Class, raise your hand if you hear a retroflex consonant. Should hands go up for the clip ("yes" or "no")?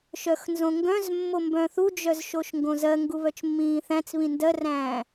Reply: no